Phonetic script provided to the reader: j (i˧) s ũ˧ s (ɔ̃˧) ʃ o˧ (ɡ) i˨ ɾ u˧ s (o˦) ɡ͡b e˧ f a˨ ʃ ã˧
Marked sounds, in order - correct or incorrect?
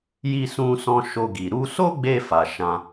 correct, correct, correct, correct

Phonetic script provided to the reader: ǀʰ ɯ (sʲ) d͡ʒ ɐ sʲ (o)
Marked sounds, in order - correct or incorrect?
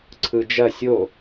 incorrect: none, correct

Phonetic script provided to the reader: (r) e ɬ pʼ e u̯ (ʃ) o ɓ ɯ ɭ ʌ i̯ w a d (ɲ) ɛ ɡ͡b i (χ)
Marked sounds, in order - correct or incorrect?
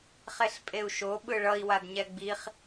incorrect: χ, correct, correct, correct

